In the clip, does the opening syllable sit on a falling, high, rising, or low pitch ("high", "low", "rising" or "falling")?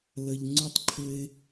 low